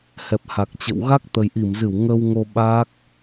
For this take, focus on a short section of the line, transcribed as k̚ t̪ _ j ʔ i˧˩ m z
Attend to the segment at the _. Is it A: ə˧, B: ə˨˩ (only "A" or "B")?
B